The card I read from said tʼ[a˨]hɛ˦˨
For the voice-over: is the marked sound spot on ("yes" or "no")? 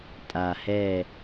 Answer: yes